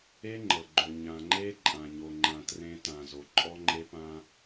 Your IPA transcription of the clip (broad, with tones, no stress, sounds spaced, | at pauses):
e˦ ŋ͡ǃ ɤ˨ ɡ͡ǃ o˨ ɲ ã˨ ŋ͡ǃ e˦ ǃʼ ã˨ ɲ o˨ ŋ͡ǃ ã˨ t r ẽ˦ t ã˨ z o˨ ǃʼ ɔ˦ ŋ͡ǃ e˦ p ã˦